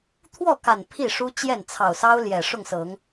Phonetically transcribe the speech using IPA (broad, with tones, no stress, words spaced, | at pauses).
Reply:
t̪ʰwɔ˥˨ka˨˩n pʰi˥˨ʂu˦t͡ɕjɛ˥˨n t͡sʰɑ˨˩ʊ̯sɑ˦ʊ̯ljɛ˨˩ ʂʊ˥˨ŋsɤ˨˦ŋ